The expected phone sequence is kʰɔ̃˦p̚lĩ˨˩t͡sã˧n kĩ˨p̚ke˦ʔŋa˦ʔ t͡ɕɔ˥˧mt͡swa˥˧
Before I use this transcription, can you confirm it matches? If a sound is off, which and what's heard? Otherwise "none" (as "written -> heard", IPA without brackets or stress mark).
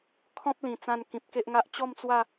none